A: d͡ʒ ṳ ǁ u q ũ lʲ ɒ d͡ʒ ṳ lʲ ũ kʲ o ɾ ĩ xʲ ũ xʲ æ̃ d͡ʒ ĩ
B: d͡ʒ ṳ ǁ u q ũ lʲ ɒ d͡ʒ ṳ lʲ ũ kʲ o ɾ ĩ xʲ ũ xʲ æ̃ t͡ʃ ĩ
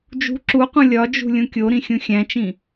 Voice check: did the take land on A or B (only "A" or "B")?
B